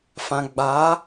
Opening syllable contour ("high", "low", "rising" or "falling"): low